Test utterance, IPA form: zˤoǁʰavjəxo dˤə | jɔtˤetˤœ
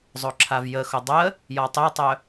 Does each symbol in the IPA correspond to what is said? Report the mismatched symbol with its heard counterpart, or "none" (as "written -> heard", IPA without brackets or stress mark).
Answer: none